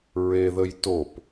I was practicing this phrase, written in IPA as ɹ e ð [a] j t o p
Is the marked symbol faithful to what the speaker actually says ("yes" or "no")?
no